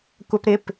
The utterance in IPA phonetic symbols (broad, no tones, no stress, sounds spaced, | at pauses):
kʷ a p ɾ ɪ p